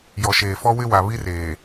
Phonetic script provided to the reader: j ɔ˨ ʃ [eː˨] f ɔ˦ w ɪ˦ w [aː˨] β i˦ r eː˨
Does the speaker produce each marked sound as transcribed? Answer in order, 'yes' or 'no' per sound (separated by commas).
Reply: yes, no